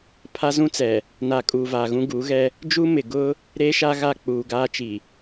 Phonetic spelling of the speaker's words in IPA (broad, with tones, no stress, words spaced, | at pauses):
pʰa˦zũ˦t͡sɛ˨ | naː˨kʼuː˨ vaː˨ɣũ˦ ɡuː˨˦ɣɛ˦ | d͡ʒuː˦mɪ˨ ɡʊ˦ | ɾe˦ʃa˦ ɣa˦˨k͡puː˨ɡaː˦t͡ʃi˨